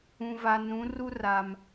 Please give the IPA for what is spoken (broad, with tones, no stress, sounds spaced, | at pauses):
ũ˨ v a˨ n ũ˨˦ r u˦ r a˨ m